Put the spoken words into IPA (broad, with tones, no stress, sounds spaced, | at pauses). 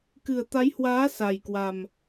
k ɨ˨˩ ə̯ t̪ a˨˦ j h w aː˨˦ s a˨˩ j k w a˨˩ m